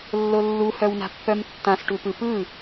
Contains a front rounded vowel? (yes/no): yes